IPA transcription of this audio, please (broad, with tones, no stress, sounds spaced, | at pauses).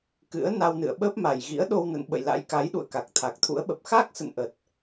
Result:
k ɨ̰˧˥ ə̯ n a˧ w n ɨ̰˧˨ ə̯ ɓ əː˦˥ p̚ m a˨˩ j ɣ ḭ˧˥ ə̯ ɗ o˧ w n ə̰˧˨ n ɓ ə̰˧˨ j l a̰˧˥ j k a˨˦ j ɗ ṵ˧˨ ə̯ k a˨˩ k̚ t̪ʰ a˨˩ k̚ t̪ʰ ṵ˧˥ ə̯ ɓ ə˨˩ p̚ x a˦˥ k̚ s ə̰˧˨ n ʔ ə˨˩ t̚